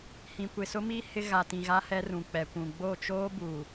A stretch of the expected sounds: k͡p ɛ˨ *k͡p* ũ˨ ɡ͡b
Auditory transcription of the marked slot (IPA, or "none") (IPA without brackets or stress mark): kʷ